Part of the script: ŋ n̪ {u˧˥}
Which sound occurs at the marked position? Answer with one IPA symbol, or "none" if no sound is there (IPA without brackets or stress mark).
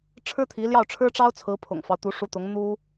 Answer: u˥